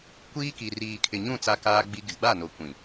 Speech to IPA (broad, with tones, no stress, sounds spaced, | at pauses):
kʷ iː˦ k i˨ r iː˨ kʰ ɪ˨ ɲ ũ˦˨ t͡s a˦ k aː˦ ɡ͡b i˦ ɡ ɪ˨ ɡ͡b a˦˨ n o˨ kʷ ĩ˨